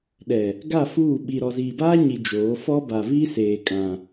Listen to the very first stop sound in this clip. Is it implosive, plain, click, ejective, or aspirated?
implosive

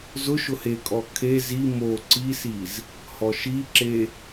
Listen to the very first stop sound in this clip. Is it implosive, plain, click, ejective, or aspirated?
ejective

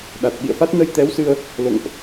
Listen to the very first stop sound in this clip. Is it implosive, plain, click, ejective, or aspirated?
implosive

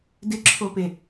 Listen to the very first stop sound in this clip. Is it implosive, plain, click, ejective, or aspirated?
plain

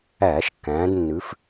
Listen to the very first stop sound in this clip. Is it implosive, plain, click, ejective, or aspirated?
plain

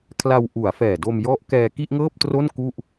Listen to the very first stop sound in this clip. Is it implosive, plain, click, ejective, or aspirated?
aspirated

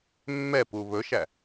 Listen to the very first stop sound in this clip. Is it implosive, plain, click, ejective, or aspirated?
plain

